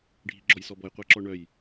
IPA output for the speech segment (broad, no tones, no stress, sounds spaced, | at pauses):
ɖʱ i ɡ͡ǁ ɔ j s ɔ b ɔ j qʷ ɛ ǁ ɔ ɳ œ j